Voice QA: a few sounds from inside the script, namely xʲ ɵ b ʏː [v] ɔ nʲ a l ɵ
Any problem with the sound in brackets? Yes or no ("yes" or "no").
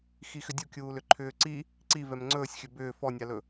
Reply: yes